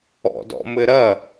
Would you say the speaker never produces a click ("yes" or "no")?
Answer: yes